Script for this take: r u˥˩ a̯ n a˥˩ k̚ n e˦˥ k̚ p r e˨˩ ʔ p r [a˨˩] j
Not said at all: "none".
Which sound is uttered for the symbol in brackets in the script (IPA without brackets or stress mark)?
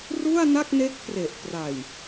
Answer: a˨˩